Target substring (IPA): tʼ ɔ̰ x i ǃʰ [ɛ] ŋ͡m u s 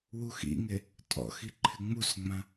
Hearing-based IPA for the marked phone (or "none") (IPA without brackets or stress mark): ɪ